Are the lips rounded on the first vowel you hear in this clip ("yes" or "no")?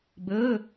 yes